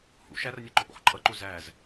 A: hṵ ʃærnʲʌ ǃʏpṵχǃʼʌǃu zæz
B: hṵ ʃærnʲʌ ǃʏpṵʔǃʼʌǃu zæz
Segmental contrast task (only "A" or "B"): A